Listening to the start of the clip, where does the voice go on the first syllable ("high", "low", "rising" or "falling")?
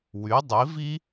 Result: rising